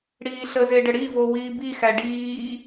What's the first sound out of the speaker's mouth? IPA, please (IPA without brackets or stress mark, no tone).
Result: ɽ